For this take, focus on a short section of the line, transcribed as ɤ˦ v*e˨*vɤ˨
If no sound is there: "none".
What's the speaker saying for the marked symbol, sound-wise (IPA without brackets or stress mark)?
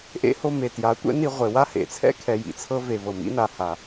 e˨